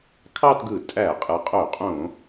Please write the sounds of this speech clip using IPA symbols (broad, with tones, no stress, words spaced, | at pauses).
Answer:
kʰɑ˥˧tɡɯ˧˩˧ tʼæ˧˩˧qʼɯ˩˧qʼo˧˩˧qʼõ˧˩˧